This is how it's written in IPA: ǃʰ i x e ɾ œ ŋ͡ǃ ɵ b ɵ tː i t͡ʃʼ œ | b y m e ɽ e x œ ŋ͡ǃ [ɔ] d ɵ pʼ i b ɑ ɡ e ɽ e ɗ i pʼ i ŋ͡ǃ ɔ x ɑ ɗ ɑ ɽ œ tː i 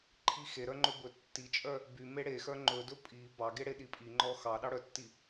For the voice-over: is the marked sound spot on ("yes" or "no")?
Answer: no